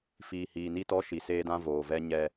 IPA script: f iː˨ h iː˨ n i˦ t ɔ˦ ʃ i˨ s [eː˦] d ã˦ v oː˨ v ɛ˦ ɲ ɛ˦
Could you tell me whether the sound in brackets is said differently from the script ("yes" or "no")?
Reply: no